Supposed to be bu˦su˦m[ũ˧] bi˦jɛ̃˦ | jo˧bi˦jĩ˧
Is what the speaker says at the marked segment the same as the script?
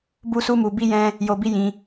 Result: no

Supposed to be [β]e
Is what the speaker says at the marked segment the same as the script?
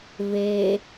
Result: yes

